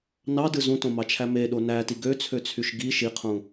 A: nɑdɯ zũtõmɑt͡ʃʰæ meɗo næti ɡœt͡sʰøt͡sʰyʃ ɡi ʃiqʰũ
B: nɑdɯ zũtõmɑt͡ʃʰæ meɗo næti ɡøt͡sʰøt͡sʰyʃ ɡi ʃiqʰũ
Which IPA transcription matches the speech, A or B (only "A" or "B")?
B